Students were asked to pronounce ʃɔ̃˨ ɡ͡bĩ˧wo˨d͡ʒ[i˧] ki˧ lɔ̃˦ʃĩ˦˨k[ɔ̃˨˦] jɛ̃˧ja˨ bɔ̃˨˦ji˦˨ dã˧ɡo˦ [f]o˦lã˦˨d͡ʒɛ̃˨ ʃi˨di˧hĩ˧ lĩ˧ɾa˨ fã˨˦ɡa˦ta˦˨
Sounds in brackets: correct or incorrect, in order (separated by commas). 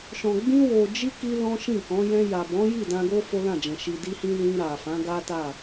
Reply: correct, correct, correct